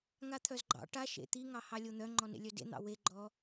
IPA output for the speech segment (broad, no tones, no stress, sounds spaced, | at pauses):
ŋ a t̪ʰ œ z ɡ͡ǃ ɑ̰ ʈ a ʃ ḛ t̪ i ŋ ɑ h ɑ lʲ o n̪ œ ŋ͡ǃ ɔ n ḛ lʲ œ d ḛ n̪ ɑ̰ w e ɡ͡ǃ ɔ